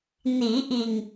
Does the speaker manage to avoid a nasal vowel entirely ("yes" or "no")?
yes